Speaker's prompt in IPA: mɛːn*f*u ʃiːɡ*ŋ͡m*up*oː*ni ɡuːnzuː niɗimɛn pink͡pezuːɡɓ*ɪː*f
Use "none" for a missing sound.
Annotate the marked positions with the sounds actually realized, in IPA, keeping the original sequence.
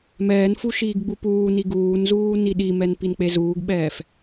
f, ɡ͡b, uː, ɛː

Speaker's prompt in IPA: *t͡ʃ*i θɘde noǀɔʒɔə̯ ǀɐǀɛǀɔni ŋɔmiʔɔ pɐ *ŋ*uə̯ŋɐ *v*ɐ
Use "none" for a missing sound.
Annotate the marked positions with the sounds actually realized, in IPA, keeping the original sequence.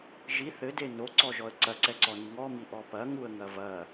ʒ, ŋ, v

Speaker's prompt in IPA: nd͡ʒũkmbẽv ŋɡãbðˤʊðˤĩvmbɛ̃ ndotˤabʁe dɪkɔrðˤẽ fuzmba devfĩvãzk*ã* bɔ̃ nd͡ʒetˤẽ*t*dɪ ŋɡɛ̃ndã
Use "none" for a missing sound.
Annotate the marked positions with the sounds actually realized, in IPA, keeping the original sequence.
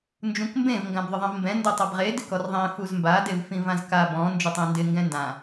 a, n

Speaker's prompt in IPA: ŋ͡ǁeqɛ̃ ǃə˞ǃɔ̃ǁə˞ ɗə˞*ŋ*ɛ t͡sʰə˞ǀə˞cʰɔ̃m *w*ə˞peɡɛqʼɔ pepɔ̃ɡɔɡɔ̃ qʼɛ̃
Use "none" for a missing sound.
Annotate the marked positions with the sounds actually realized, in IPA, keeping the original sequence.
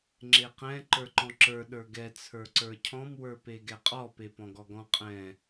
ɡ, w

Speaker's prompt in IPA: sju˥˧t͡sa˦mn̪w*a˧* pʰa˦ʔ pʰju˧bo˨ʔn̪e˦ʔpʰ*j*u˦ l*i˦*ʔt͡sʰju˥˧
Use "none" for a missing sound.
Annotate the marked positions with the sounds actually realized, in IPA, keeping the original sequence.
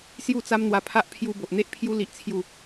a˧, j, i˦

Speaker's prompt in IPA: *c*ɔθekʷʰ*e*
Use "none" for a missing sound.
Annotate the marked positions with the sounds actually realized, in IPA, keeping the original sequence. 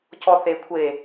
c, e

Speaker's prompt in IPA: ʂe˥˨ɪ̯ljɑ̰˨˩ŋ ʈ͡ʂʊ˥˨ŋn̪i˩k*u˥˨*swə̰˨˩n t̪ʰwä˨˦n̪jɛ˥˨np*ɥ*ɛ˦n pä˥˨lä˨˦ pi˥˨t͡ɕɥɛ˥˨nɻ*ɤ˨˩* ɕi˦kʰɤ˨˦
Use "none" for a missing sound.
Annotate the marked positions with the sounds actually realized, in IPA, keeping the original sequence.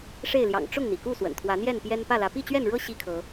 u˥˨, j, ɤ˦

